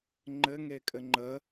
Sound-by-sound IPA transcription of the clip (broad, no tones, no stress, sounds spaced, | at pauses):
ŋ͡ǃ ɘ ŋ e kʼ ɘ ŋ͡ǃ ə